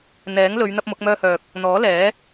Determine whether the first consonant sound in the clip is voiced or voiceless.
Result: voiced